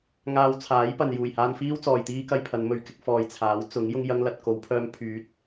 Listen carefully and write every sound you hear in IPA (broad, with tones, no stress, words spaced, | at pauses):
ŋaː˧wt͡sʰaː˨˥j pɐ˨n juː˨˩jhaː˧nfiː˥w t͡sɔː˨jt̪iː˥kɐ˧jpʰɐ˨˧n mɵ˨˩ɥkɪ˧k̚fɔː˨j t͡sʰaː˨˥wt͡sʊ˨˥ŋ jʊ˧ŋjɐ˧ŋ lɐ˨t̚ ko˨˧wpʰœː˧m pʰyː˨˥t̚